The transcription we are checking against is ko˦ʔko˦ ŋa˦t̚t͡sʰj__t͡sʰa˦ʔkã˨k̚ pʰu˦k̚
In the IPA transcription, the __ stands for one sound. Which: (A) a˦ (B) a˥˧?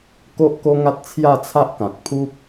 B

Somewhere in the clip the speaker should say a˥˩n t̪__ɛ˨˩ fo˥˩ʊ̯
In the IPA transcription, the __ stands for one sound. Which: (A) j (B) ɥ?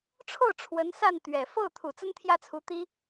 B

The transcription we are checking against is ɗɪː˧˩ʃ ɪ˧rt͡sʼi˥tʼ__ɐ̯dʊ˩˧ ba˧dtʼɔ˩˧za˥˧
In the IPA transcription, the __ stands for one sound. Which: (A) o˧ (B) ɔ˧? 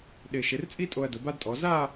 A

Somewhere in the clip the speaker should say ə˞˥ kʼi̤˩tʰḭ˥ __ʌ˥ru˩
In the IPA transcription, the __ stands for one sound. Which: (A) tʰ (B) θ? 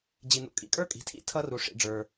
A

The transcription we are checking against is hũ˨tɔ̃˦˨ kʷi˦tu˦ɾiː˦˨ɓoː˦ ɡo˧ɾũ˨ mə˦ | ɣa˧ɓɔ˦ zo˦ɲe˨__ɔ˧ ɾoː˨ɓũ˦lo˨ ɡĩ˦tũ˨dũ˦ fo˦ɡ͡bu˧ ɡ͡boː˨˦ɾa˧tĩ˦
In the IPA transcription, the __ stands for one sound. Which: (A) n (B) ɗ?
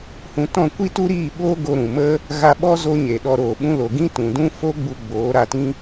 B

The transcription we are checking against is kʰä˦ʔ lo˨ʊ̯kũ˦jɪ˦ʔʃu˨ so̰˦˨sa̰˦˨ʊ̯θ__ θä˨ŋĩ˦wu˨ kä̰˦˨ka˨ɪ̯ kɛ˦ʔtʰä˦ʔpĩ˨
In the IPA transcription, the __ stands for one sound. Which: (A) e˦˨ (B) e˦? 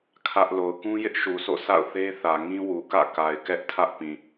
B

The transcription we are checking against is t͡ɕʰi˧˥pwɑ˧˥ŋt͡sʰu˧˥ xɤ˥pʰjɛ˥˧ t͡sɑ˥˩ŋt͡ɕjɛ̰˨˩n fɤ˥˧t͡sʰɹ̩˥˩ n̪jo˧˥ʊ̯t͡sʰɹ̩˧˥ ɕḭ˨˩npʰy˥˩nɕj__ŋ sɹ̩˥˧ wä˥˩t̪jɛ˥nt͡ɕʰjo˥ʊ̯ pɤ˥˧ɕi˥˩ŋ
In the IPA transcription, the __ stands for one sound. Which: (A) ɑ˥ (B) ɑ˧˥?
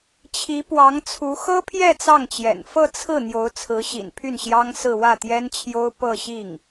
A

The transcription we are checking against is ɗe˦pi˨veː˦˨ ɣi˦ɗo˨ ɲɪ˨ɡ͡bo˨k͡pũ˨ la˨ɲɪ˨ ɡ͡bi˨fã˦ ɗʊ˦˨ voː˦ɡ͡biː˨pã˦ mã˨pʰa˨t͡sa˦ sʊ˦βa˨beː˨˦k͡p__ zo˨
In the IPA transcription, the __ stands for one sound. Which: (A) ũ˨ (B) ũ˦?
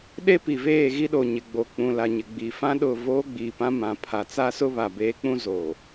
B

